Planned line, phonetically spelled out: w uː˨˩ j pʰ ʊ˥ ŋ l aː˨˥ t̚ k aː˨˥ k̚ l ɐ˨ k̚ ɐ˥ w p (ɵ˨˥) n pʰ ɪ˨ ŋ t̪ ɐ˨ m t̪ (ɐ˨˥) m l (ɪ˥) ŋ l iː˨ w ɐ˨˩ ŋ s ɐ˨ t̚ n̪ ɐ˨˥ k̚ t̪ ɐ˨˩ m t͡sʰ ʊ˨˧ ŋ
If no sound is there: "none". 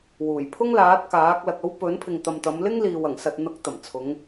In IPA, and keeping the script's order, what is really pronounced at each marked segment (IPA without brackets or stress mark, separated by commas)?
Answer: ɵ˨˥, ɐ˨˧, ɪ˥